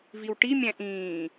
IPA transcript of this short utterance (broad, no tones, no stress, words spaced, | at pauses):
viwʈimʲæ̃ ʔĩː